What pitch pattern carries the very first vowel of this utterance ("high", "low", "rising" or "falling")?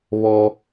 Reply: low